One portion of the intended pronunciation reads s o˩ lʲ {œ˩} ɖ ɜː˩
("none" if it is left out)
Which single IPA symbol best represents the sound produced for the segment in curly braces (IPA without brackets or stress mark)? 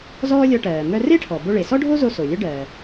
œ˥